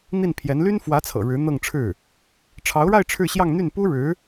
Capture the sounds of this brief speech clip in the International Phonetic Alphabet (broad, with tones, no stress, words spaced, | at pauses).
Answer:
n̪i˥˩npʰjɛ˧˥n ly˥nfwä˧˥t͡sʰɤ̰˨˩ ɻɻ̩˧˥n̪ɤ˥˧ŋʈ͡ʂʰɻ̩˥˩ | ʈ͡ʂʰɑ˧˥ʊ̯ɻa˥˧ɪ̯ ʈ͡ʂʰɻ̩˥˧ɕjɑ˥˧ŋn̪y˥˩n pu˥ɻɻ̩˧˥